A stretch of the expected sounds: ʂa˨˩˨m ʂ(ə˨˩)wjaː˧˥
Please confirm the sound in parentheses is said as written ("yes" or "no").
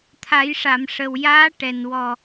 yes